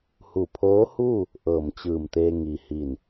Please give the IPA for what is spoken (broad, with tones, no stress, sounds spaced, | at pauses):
h u˧˩ pʰ oː˧˥ h uː˥˨ | ʔ ɤː˧˩ m t͡ɕ ɯː˧˩ m t̪ eː˧ ŋ i˩ h i˧˩ n